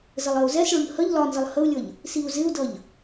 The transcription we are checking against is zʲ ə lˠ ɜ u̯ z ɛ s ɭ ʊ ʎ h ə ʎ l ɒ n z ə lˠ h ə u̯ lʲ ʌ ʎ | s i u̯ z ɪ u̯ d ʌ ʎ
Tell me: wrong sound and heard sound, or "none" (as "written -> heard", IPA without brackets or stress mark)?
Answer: zʲ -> z